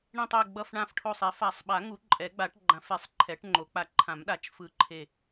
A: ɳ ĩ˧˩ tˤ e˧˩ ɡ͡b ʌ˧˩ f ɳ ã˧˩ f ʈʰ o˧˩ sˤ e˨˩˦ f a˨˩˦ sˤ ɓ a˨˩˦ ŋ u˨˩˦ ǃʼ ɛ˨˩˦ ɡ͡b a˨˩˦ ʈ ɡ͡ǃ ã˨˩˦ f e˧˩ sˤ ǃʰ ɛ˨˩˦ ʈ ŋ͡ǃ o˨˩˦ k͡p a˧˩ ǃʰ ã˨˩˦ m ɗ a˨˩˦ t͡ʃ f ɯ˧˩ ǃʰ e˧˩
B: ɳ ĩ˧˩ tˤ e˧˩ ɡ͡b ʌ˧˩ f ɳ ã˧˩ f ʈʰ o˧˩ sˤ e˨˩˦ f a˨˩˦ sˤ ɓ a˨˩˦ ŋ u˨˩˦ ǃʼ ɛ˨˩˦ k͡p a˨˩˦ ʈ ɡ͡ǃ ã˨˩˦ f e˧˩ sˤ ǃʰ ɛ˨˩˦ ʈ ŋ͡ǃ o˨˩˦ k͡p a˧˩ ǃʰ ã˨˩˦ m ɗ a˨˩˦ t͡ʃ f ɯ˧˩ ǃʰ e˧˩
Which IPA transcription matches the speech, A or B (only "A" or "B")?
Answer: A